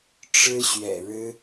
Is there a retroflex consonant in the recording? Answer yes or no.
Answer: yes